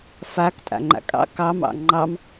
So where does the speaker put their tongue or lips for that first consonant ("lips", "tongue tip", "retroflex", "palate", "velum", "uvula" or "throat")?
lips